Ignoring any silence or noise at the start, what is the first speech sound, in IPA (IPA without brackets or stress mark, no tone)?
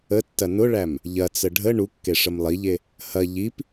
ə